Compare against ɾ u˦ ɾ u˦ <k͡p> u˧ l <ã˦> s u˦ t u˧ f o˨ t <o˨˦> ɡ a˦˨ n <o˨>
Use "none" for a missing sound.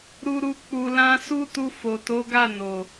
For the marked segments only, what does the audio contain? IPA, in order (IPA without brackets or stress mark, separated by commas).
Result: k͡p, ã˦, o˨˦, o˨